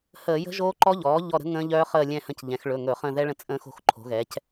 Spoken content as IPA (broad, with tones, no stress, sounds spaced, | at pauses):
h əː˧˩˧ j ə̤˦˥ ʒ oː˦˥ ǃ ɔ˦˥ ʎ ɔː˩˥ ʎ ɔ˦˨ ɾ ə̤˦˥ ŋ ə̃ː˦˥ ʎ œː˦˥ χ əː˦˨ lʲ ɛ̃˦˨ h ə̃˦˨ c ʎ ɛ̃˩˧ x ɭ ɵ˩˧˩ ŋ ɵ˧˩˧ χ ə̃ː˦˨ ð ɛ˦˥ ɭ ə̃˦˨ t͡sʼ ə̃ː˦˥ x o̤˩˧ x ǃʰ o̤˩˥ ɣ ɛ˩˥ c